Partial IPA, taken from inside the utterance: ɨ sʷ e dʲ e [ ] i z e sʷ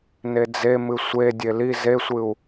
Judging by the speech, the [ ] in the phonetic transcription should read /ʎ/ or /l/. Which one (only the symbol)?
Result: l